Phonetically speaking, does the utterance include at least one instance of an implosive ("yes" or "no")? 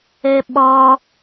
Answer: yes